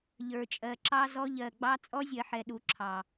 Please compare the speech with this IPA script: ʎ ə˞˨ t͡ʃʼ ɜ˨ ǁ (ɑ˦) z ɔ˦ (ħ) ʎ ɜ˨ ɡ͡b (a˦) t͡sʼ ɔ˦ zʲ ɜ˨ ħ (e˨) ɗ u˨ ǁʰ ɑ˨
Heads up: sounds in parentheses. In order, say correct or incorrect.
correct, incorrect, incorrect, incorrect

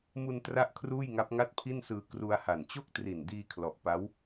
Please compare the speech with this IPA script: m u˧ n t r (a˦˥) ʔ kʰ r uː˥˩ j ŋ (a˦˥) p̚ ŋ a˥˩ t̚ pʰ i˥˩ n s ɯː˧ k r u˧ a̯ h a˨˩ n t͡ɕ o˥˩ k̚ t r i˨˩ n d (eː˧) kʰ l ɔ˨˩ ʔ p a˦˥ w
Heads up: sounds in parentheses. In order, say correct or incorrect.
correct, correct, incorrect

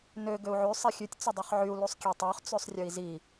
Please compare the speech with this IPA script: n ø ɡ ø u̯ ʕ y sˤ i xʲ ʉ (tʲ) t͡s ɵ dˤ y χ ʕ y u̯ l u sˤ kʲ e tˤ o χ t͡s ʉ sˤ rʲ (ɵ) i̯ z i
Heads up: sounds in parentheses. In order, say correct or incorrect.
correct, correct

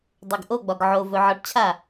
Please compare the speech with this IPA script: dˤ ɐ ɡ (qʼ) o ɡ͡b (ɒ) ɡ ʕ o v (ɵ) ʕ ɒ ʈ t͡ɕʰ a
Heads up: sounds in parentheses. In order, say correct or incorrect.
incorrect, correct, correct

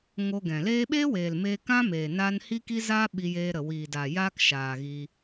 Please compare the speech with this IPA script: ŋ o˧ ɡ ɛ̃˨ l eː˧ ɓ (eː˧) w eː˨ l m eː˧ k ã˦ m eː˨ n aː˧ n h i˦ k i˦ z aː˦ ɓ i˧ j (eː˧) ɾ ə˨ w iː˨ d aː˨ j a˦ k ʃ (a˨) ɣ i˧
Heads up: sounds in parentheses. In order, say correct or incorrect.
incorrect, correct, incorrect

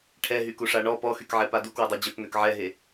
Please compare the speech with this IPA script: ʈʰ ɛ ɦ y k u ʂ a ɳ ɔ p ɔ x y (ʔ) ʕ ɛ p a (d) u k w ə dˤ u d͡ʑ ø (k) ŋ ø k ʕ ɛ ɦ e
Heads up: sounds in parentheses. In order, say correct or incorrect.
incorrect, correct, correct

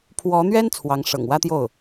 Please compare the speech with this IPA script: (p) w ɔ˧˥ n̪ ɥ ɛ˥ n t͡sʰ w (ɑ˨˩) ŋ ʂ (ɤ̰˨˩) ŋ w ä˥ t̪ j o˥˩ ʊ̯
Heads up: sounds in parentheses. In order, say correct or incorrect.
incorrect, incorrect, correct

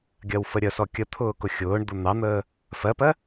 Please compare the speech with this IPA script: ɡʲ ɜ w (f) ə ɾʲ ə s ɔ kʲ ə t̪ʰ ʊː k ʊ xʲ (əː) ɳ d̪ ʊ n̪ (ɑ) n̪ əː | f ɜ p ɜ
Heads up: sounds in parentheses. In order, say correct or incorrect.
correct, incorrect, correct

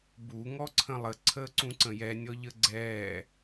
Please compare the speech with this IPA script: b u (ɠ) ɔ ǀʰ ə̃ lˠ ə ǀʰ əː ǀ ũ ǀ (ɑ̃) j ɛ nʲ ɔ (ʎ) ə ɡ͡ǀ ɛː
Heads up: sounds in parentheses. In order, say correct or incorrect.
incorrect, incorrect, correct

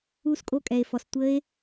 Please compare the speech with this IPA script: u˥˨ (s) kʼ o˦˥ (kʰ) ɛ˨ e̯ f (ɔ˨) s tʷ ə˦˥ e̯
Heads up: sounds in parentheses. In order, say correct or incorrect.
correct, incorrect, correct

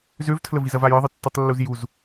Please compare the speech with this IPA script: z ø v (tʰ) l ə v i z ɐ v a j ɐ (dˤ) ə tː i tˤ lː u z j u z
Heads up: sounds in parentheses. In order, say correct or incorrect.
correct, incorrect

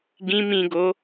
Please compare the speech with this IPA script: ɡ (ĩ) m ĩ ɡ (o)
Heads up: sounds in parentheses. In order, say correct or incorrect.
correct, correct

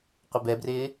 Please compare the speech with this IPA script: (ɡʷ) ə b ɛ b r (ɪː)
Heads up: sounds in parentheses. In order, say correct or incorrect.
incorrect, correct

